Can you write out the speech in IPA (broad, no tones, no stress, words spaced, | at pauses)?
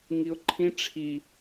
ŋiʊ̯ǃʰĩ ʈ͡ʂʰi